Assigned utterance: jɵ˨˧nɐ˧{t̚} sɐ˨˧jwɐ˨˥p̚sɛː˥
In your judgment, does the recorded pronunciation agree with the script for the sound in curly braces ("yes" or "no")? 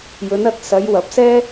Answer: yes